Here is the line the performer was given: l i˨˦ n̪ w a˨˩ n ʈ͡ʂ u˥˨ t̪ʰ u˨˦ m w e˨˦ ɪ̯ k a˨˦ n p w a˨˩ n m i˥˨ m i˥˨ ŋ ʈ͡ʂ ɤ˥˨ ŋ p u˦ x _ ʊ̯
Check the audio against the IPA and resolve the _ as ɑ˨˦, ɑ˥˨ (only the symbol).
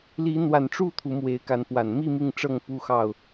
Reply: ɑ˥˨